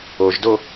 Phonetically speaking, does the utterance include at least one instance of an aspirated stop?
no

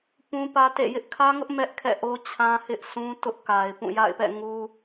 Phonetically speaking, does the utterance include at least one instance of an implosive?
no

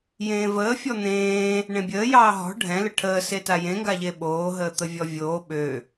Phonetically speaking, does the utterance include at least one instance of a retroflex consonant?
yes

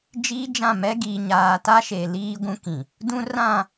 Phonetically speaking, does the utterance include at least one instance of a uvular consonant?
no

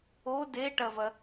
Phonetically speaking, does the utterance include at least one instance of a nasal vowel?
no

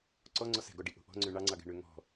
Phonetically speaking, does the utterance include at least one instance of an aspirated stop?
no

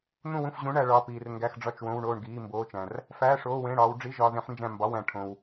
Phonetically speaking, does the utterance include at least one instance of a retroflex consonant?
yes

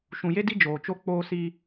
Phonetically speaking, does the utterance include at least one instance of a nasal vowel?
yes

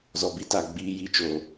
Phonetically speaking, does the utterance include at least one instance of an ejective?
no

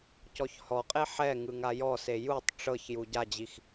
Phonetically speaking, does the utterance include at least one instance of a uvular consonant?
yes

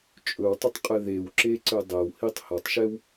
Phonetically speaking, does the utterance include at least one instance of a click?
yes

